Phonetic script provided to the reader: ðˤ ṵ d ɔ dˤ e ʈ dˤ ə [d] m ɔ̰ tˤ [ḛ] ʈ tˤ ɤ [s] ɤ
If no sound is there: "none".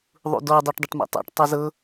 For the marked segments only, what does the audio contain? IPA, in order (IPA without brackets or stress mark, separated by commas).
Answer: ʈ, ḛ, z